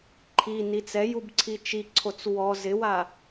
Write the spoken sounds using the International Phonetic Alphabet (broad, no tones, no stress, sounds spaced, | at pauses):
ǃʰ i n i t͡s ɛ j u b ǀʰ i t͡ʃ i ǀʰ o t͡s w ɔ z ɪ w a